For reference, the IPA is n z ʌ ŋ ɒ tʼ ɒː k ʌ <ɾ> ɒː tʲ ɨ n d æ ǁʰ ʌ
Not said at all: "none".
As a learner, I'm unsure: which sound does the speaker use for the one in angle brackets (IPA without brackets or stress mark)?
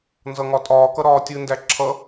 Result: ɾ